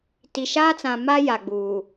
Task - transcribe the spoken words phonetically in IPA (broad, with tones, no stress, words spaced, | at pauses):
ti˨ʃaː˦t͡sã˨ma˦ ja˨ɡ͡buː˨